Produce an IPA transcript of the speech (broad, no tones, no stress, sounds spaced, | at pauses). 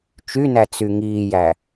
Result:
t͡ʃ y n æ t͡s y ŋ iː j æ